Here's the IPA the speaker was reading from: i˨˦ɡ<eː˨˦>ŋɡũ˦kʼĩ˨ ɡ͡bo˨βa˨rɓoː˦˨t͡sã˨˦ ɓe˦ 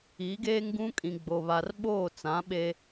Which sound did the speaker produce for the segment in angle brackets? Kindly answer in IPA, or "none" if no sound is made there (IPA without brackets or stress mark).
eː˦